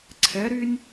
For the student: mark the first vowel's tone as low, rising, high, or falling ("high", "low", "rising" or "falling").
rising